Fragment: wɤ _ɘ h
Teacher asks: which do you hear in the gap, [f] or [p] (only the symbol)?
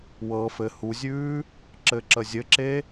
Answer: f